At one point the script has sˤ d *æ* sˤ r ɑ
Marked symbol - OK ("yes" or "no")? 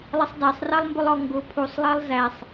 yes